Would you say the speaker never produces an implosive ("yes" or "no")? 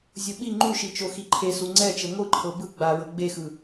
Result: no